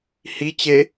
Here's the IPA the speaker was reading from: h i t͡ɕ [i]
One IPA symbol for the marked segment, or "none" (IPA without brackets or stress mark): e